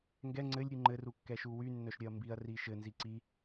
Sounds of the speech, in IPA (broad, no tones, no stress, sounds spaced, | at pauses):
ŋ ɡ ɛ ŋ͡ǀ ɘ lʲ ɾʲ u ŋ͡ǃ ɘ r u kː ɛ ʃ u w y nː œ ʃ ɾʲ œ ɐ̯ m b i ɐ̯ r i ʃ ɘ n z i ǀ i